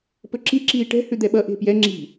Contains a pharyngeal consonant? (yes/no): no